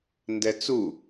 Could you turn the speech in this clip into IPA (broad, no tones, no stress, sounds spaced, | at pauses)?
n d ɛ t͡s u